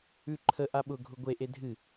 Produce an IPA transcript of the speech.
ʉ ǃʰ ə ʔ a ɓ ʊ ɡʱ ʊ ɡʷ e ʔ e dʱ ɨ

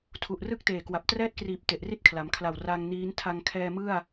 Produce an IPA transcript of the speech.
tʰ u˨˩ ʔ r ɯ˥˩ k̚ t eː˨˩ k w a˨˩ p̚ t r ɛː˥˩ t̚ k r iː˨˩ p̚ t e˨˩ ʔ r i˥˩ t̚ kʰ l a˩˦ m kʰ l a˨˩ w r a˧ ŋ n iː˦˥ n tʰ a˧ ŋ kʰ ɛː˧ m ɯ˥˩ a̯

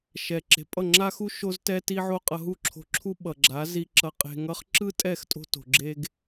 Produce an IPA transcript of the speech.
ʃ ɛ˨ ǁ e̤˨ pʼ ʌ˦˨ ŋ͡ǁ a˦ x u˦ ʃ o˦ z t ɛ˦ t i˦ ʕ o˦ qʼ ʌ˧ ɦ u˦ ǁʰ o̤˧ ǁʰ u˦ ɓ ʌ˨ ɡ͡ǁ a˨˦ z i˧ ǁ ʌ˧ qʼ e̤˧ ŋ ʌ˦ χ ǁ ɯ˦ tʼ ɛ˦˨ x tʼ o̤˧ t o̤˨ ɡ͡ǁ e˧ ɡ

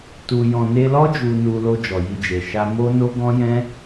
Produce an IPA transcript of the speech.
t u˨ j ɔ̃˨ n e˧ l ɔ˦ d͡ʒ u˧ n u˧ l o˧ d͡ʒ ɔ˨ j i˧ d͡ʒ e˨ ʃ a˧ m o˦ n o˦ ɡ ɔ̃˦ j ɛ̃˦

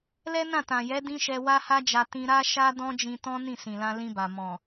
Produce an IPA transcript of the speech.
l ɛ˦ n ã˦˨ t ã˨ j ɛ˨˦ d ĩ˦ ʃ ɛ˧ w a˦ h a˦ d͡ʒ a˧ t ĩ˧ ɾ a˦ ʃ a˦ d ɔ̃˦ d͡ʒ ĩ˧ t ɔ̃˦ n ĩ˦˨ s ĩ˨ l ã˧ l ĩ˧ b a˨ m ɔ̃˨

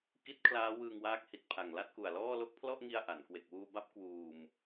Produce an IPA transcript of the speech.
k i˦˥ t̚ kʰ l aː˦˥ w ɯː˧ ŋ w aː˦˥ k̚ h i˨˩ t̚ pʰ a˨˩ ŋ l a˥˩ t̚ k u˨˩ a̯ l ɔː˥˩ l o˥˩ k̚ pʰ l ɔ˥˩ ʔ ŋ i˧ a̯ ʔ a˩˦ n k w e˨˩ k̚ w uː˧ b a˦˥ p̚ k w uː˧ m

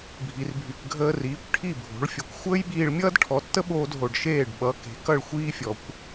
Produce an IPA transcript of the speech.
bʱ i˩ r bʱ y˩ k ɡʱ əː˧ r iː˩˥ kʷ ʈʰ i˥˩ bʱ o̤˩˥ ɭ fʲ ʌ˩˥ kʷ xʷ əː˥ j ɓ iː˧ ɭ mʲ ʌː˥ d ʈʰ ɔ˩˥ tː ə˥ ɓ oː˧ d ɦ o˩ ɖ ʃ eː˥˩ ɖ ɓ ʌ˩˥ k e̤˩˥ k ʌ˥˩ ɭ xʷ iː˥ fʲ ɔ˩ kʷ

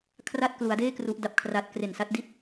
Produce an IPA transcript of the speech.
kʰ r a˥˩ t̚ k l u˩˦ a̯ d eː˥˩ k r u˦˥ ʔ d a˦˥ p̚ kʰ r a˦˥ t̚ k r e˨˩ n s a˦˥ t̚ d i˥˩ t̚

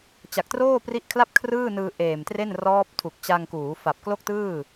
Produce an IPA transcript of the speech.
t͡ɕ a˨˩ k̚ t r oː˥˩ p r i˦˥ ʔ kʰ l a˥˩ p̚ kʰ r ɯː˥˩ n ɯː˧ ʔ eː˨˩ m t r e˥˩ n r ɔː˦˥ p̚ tʰ u˨˩ k̚ t͡ɕ a˧ ŋ k uː˩˦ f a˨˩ p̚ k l o˥˩ k̚ t ɯː˥˩

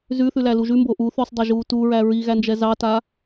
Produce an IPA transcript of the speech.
z ʉ θ ʉ l æ l u ʒ ʉ m b o ʔ u θ ʉ sˤ dˤ ɛ ʒ uː t u ɹ æ ɹ i ɣ æ n d͡ʒ ɛ z ɑ t a

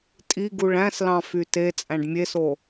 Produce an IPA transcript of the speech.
tʼ i ɡ u ɭ æ̃ s l ɑ̃ f y t e t͡sʼ æ̃ ɖ mʲ e s o

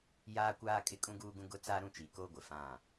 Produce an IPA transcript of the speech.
j aː˦ kʷ aː˦ kʼ ɪ˦ kʼ ũ˦ ɡ uː˦ ɡ ũ˦ ɡ ʊ˦ t͡s aː˦ ɾ ũ˦˨ t͡ʃ i˨ k oː˦ ɡʷ ɪ˨ f ã˦˨

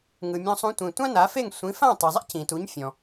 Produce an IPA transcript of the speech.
ŋ ɯ˩ mʲ ɔ̃˧ sˤ ũ˧ tʷ ĩ˩ tʷ ã˥ n a˩˥ f e˥˩ ŋ sʷ ĩ˩˥ f ã˥˩ tˤ i˩ zˤ ḛ˥ c ĩ˩ t u˩˥ ɲ fʲ ɔ̃˩

